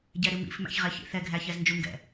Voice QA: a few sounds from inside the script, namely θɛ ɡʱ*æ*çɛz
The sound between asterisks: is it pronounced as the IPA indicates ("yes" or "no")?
yes